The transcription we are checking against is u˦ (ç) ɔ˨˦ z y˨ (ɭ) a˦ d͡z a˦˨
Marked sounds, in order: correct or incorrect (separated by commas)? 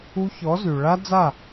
correct, correct